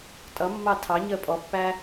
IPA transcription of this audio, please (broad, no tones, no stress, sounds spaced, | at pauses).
tʼ ʌ mː ɑ tʰ ɑ ɲ əː pʼ ɔ pː æ